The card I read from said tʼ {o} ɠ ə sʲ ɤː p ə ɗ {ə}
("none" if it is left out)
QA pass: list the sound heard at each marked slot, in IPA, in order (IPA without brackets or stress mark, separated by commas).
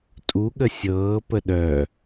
u, œ